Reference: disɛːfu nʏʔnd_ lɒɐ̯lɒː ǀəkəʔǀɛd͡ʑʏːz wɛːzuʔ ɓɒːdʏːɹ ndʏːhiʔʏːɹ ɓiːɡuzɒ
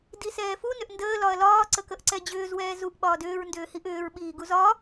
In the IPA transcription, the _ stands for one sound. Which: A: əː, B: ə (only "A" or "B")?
A